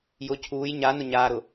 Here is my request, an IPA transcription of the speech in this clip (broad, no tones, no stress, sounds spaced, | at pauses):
j ʊ cʰ uː j ɲ a n ʊ ɲ aː ɾ ʊ